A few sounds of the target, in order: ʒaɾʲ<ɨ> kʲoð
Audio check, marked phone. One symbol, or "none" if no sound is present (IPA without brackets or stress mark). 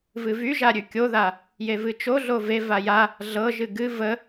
ʉ